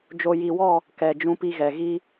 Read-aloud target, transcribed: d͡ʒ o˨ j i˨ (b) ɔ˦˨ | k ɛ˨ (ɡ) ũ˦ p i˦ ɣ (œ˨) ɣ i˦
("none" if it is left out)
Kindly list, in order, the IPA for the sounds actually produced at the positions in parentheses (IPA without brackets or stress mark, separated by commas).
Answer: w, d͡ʒ, ɛ˨